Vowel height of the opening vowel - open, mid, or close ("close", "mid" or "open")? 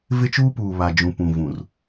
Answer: close